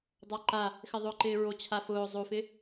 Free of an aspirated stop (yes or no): no